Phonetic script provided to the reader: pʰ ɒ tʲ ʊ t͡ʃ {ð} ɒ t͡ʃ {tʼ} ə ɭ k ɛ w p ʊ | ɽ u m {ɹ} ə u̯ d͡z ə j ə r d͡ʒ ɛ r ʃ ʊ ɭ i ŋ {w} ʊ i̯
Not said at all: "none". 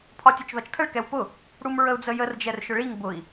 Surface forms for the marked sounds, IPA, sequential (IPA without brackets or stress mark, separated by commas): ð, tʰ, ɹ, b